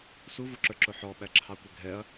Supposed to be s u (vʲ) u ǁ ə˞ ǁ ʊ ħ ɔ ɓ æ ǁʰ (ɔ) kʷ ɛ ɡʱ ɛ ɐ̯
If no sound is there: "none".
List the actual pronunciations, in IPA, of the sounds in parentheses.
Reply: v, ɑ

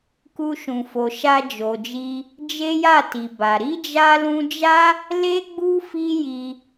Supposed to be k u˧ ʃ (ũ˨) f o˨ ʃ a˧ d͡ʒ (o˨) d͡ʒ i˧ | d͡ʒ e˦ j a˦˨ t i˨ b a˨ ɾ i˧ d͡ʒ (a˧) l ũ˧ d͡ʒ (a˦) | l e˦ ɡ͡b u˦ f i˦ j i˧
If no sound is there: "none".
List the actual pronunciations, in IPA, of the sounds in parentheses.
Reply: ũ˨, o˨, a˧, a˦

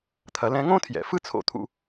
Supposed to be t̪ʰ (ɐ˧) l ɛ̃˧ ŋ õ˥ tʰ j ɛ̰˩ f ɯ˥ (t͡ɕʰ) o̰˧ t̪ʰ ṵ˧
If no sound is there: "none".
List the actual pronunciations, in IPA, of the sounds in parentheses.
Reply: ɐ˩, t͡sʰ

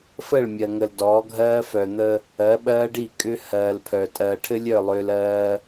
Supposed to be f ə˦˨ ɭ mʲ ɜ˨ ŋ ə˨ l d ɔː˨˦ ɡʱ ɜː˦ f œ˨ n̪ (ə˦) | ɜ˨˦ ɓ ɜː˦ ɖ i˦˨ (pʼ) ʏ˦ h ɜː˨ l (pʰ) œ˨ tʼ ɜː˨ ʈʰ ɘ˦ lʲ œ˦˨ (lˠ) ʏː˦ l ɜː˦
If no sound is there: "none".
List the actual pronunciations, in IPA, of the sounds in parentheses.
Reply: ə˦, kʼ, pʰ, lˠ

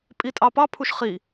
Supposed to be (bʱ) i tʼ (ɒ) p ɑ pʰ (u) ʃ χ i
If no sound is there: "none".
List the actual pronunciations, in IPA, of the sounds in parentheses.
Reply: pʼ, ɑ, u

